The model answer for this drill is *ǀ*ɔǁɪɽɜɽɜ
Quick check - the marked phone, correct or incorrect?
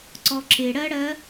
correct